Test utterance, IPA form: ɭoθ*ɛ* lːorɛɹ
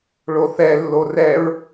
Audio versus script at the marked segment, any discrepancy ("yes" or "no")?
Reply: no